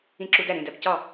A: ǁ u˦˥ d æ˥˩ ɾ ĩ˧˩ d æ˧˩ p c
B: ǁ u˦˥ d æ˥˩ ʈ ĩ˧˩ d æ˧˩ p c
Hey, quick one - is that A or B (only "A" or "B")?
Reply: A